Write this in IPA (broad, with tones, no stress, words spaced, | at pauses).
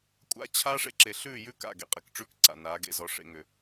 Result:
kʷʼa̰˦t͡ɕʰaː˦ʂ ḛ˨ǁe˨ɬʉː˦˨jʉ˦ ka̰˦˨ɡḛ˨qʼe˨kʈ͡ʂʉ˦k ǀa̰˨naː˨˦ ɡḛ˨zɔ˨ ʂḛ˨ŋʏ˨